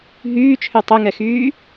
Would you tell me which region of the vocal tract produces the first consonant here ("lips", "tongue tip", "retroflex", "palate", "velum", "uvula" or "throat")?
throat